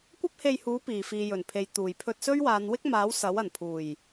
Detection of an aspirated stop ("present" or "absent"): present